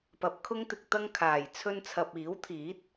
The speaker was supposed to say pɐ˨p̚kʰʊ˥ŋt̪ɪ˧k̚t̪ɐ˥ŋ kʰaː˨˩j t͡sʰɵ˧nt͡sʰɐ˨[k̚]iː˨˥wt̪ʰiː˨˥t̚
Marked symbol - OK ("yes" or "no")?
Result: no